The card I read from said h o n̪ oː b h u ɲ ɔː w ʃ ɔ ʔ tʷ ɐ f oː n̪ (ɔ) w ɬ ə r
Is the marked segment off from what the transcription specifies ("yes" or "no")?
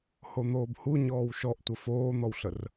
no